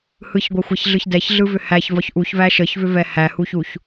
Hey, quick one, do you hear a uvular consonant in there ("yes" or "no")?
no